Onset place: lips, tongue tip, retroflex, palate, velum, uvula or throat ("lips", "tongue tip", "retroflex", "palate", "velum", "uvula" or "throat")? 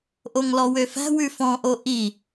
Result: throat